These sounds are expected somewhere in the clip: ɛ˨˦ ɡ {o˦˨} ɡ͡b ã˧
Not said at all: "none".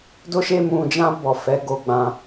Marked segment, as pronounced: o˧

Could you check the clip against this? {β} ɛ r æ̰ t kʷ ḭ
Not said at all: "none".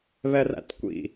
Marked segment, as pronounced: β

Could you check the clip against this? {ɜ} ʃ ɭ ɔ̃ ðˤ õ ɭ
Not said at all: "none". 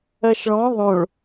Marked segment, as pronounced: ɜ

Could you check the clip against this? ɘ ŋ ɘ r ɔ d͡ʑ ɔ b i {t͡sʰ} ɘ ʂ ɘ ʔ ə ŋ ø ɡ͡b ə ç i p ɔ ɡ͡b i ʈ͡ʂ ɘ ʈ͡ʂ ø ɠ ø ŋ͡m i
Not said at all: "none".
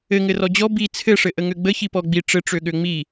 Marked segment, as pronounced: t͡sʰ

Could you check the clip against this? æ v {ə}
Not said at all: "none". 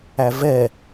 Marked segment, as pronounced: ɛ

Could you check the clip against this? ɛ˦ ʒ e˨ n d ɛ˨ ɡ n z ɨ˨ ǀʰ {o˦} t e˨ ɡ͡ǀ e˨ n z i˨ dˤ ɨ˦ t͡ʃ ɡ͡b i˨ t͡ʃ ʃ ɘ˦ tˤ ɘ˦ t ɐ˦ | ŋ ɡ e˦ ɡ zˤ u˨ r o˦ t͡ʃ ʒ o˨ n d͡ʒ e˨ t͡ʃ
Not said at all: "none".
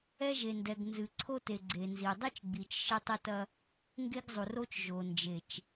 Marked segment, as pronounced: o˦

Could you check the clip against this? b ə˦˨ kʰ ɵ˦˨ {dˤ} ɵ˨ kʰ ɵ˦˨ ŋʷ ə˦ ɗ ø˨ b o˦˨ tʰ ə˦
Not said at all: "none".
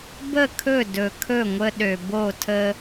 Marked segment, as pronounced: d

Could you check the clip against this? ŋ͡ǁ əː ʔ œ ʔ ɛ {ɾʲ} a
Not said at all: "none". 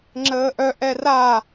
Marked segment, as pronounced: r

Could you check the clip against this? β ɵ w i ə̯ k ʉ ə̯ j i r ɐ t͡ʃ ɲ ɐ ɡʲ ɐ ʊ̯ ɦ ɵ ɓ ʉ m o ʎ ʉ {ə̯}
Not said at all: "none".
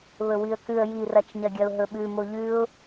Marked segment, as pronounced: ʊ̯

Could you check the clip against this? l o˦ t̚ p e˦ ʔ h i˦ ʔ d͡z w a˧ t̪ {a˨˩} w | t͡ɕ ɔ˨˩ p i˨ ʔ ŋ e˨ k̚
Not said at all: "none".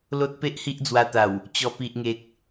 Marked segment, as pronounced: a˨˩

